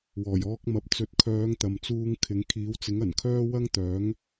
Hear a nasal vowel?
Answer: no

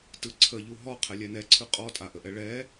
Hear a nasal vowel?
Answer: no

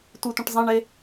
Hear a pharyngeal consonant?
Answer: no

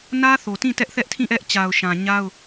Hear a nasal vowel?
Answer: yes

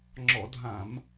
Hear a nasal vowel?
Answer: yes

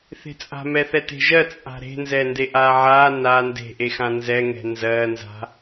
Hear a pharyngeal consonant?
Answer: yes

